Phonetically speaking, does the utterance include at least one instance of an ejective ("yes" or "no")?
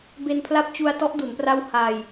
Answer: no